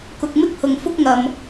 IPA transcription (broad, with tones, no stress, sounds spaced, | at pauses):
k ʊ˨ k̚ m ɪ˥ k̚ h ʊ˨ ŋ f ʊ˥ k̚ ŋ ɐ˨ m